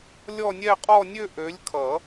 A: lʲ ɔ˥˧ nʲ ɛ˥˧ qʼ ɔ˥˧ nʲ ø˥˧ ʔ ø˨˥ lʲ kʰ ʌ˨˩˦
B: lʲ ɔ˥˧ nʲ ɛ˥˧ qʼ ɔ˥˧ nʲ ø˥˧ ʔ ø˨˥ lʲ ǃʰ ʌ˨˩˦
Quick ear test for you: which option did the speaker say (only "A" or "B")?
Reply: A